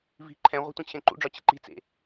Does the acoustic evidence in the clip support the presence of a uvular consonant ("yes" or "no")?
yes